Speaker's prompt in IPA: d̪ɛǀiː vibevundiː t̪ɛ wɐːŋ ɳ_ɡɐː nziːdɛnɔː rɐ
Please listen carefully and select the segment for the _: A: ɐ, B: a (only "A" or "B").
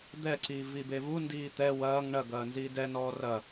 A